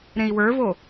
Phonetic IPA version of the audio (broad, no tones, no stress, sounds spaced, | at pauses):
ɾ ẽ i̯ w ə˞ v o